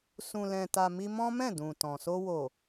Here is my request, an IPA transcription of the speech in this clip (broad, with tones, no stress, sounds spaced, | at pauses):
s ũ˨ l ɛ̃˨ t a˨ m i˧ m ɔ̃˦ m ɛ̃˦˨ d ũ˨ t ɔ̃˨ s o˧ w o˨